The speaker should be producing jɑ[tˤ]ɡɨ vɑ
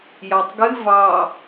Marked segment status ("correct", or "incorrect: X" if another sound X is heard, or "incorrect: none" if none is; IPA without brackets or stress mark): correct